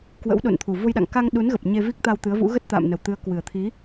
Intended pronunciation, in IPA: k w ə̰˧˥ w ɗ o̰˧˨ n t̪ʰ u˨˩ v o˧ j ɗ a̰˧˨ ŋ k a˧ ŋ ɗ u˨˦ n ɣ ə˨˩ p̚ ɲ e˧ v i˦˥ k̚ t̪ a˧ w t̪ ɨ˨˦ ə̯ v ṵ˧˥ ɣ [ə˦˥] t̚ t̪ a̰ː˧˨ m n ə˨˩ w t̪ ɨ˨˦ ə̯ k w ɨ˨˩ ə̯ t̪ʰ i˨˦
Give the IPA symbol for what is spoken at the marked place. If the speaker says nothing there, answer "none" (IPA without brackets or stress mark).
ə˦˥